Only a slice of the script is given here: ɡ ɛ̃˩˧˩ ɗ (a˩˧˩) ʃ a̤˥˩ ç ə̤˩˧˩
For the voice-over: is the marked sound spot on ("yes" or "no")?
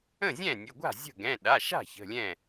yes